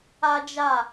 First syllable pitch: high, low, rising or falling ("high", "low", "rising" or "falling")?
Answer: high